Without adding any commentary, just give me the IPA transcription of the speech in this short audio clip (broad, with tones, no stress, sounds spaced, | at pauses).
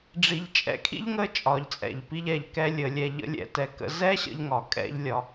ɖ͡ʐ i˧ ʎ t͡ʃʼ ɛ̰˧˥ kʰ ḭ˥ ʎ ŋ ə˥ t͡ʃʼ ɒ˩˧ ʎ t͡sʼ ɛ̰˩ ʎ p i˧ ʎ ɛ˩˧ ʎ k ɛ˧ lʲ ə˩˧ lʲ ɛ˧ ʎ ə̰˧˥ lʲ ɛ̰˧ t ɛ˧ k ə̰˧˥ z ɛ˥ ɕ ə̰˧ ʎ ŋ ɒ˩ kʼ ɛ̰˧ ʎ lʲ ɒ˩˧